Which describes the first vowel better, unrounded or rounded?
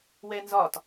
unrounded